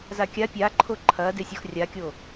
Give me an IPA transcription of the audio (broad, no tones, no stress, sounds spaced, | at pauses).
z a kʲ a pʲ a ǃʰ o ǃʰ ɐː d e sʲ o x rʲ a kʲ o